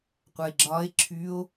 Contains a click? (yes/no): yes